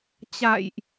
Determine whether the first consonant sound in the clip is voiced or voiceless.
voiceless